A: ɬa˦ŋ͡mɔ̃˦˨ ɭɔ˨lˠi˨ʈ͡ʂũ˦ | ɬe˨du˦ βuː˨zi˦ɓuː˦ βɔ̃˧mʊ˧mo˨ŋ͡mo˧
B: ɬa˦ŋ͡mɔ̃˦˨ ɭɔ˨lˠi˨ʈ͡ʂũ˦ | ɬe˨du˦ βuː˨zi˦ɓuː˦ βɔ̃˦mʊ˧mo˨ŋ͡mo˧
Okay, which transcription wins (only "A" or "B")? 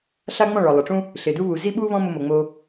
B